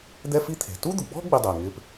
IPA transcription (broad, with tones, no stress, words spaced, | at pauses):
d̪ɛ˥fi˥ t̪ʰe̤˩ tu˥d̪ʊ˩ɡ͡bɔ̤˥ ɡ͡bɪ˥dˤe˩ŋɪ˥p